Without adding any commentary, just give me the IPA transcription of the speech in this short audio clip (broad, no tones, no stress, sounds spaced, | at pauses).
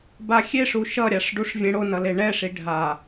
b a xʲ e ʂ u ʃ ʌ ɾʲ a ʂ ɖ u ʂ vʲ ẽ ɽ o n ʌ l e ɳ ɛ ʂ i ɖʱ a